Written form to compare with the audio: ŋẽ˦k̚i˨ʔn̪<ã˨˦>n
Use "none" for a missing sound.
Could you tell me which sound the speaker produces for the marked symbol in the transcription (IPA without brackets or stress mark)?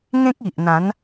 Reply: ã˨˦